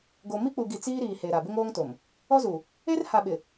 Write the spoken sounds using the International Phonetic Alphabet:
ɡo˨mi˦k͡pu˨ɡi˨ t͡siː˦ɾiː˨he˨ ɾa˨bɪ˦ŋoː˦ŋto˨m | ɔ˦zu˨ | e˦rha˨ɓɪ˨

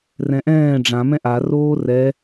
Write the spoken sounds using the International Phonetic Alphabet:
rɛ̃ʔɛ̃ː ɖ͡ʐã mɛ̃ʔa roːrɛ

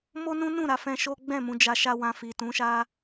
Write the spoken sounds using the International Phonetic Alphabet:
mo˦nũ˦nũ˦˨ɾa˧ fɛ̃˧ʃo˦ ɡ͡bɛ̃˦˨mũ˧ d͡ʒa˧ʃa˦wã˧ fi˨tũ˨˦ʃa˦

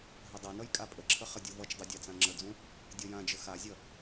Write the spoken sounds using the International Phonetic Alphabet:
ɦədˤʌnʌj kʼapʼəǁʰə χədʲuvʌt͡ʃdˤu dʲat͡sãŋ͡ǁəd͡zũ | dʲʌjãd͡ʒə xazʲʌ

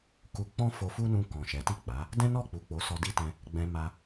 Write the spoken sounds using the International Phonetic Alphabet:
ku˧k͡pɔ̃˦ fo˧fu˦nũ˧ kɔ̃˨ ʃɛ˨˦ti˦˨k͡pa˨˦ | dɛ̃˦nɔ˦˨k͡pu˨ k͡po˨˦ sɔ˧di˦tɛ̃˧ | ɡ͡bɛ̃˧ma˧

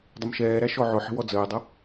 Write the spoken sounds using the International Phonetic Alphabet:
dˤəmʃɛːɾæ ʃɔʕʊħə̤ wɔd͡zəːdˤʌ

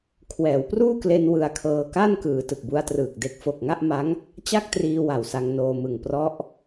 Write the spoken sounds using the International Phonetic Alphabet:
kʰwɛː˩˦wpruː˥˩kle˧n wɯ˧a̯kʰɤː˧ ka˥˩nkɯː˩˦ tɯ˨˩k̚bu˧a̯trɯː˨˩k̚de˦˥k̚ fo˨˩k̚ŋa˥˩ʔma˦˥ŋ | t͡ɕa˥˩k̚triː˧ wa˨˩wsa˧ŋnoː˧mɯ˨˩ŋ prɔ˦˥ʔ

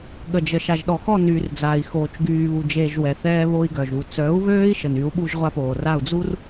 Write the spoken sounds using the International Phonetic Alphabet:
ɠə˨d͡ʒə˨ ʃa˨ʒɗɔ˨xɔ˦˨nyː˨r d͡za˨i̯xoː˨t͡ʃ ɡyː˨βu˨d͡ʒeː˨ʒ wɛ˨θɛː˦ βo˦i̯ɡœ˨ʒu˨ t͡sœ˨˦u̯βøː˦i̯ ʃə˨ny˨˦u̯ ɓu˦ʒʁʷa˦poː˨ra˦˨u̯ d͡zu˦r

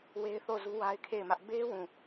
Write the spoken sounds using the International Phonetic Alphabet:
we˦ɪ̯θo˦˨ zu˦wa˦ɪ̯kʰe˦˨ɪ̯mä˦ʔ be˦ wũ˦˨

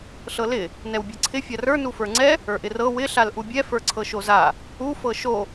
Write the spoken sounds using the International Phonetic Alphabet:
ɬɤlɪ | nɛwbʲɤǀʰɪ fʲarə˞ nufə˞ŋ͡ǀɛ | ə˞ʔɪrɤ wɪ ɬalʔubʲɛ fə˞ǀʰɤʃoza | u fɤʃo

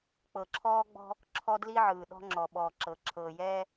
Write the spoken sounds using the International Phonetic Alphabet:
k͡pɤ˨ǁʰɔː˦ɡ͡bɔ̤˦ | ǁʰɔ˦ dli˦ʕɯː˨ɗɔ̤˦ ŋ͡ǁɔ˨ɓɔː˨ǁɤ˨ ǁʰɤː˨jɛː˦

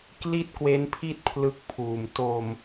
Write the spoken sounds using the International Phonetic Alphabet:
kli˥˩t̚kwe˦˥npʰi˥˩t̚ pʰlɯ˦˥k̚pʰuː˨˩m to˧m

